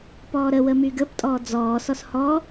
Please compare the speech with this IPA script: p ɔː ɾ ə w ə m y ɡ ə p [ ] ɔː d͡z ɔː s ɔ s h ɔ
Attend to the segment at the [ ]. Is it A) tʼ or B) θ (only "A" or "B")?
A